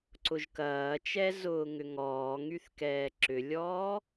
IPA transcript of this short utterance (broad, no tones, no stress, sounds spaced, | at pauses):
ǀ ʊ ʒ k ɐː t͡ʃ ɛ z ʊː ŋ ʏ ŋ ɔː ŋ y θ k ɛː ǁ ʏ lʲ ɔː